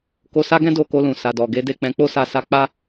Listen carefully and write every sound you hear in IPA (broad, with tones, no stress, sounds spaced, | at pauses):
k o˧ s a˦ ɡ ɛ̃˦ d o˦˨ k o˧ l ũ˨ s a˨ d ɔ˨ ɡ e˨˦ d e˦˨ k͡p ɛ̃˧ k͡p o˦ s a˦˨ s a˧ k͡p a˦